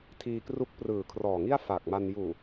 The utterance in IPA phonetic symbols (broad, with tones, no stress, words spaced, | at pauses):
tʰiː˧kru˦˥k̚prɯː˨˩ kʰrɔː˨˩ŋi˥˩a̯ fa˨˩k̚ma˧n juː˨˩